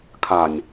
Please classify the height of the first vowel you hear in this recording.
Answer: low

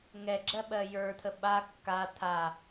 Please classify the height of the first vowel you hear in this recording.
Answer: mid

